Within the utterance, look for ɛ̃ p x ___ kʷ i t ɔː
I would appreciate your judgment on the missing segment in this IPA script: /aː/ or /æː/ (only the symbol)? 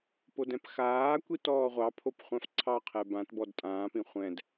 aː